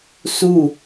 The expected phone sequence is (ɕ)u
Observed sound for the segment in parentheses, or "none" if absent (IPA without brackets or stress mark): s